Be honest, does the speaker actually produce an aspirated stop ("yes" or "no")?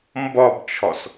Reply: yes